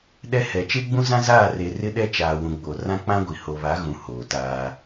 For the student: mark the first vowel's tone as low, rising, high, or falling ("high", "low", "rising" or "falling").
high